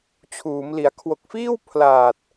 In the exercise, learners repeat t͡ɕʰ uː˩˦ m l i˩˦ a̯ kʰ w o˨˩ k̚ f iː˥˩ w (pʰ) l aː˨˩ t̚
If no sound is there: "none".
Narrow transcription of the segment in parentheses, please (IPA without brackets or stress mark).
pʰ